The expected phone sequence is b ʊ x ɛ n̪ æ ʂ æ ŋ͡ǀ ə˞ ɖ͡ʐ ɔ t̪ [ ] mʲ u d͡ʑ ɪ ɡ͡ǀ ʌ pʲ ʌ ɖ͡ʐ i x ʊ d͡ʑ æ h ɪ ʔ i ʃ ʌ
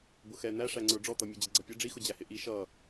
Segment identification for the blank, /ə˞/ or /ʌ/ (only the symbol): ʌ